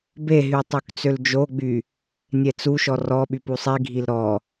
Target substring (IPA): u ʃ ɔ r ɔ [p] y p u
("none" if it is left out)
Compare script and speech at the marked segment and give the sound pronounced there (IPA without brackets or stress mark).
ɓ